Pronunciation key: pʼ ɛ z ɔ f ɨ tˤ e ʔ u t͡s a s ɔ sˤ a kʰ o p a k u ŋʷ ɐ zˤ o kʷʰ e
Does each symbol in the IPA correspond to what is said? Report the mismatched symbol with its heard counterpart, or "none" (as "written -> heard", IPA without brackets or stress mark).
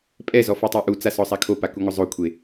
none